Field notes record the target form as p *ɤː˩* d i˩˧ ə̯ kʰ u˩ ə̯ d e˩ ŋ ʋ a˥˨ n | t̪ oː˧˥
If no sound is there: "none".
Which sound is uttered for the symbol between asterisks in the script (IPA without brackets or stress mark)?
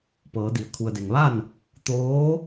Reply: ɤː˩˧